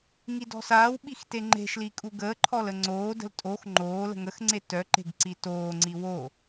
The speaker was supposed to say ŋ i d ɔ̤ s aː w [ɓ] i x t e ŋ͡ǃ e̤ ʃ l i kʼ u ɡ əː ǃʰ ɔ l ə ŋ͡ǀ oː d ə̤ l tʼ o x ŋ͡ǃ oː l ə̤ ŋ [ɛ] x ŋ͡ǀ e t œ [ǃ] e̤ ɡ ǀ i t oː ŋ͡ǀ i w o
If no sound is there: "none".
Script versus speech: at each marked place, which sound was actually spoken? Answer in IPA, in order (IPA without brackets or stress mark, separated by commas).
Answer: ɓ, ə, ǃ